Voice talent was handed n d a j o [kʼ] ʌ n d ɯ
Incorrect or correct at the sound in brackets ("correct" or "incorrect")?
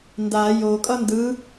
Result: correct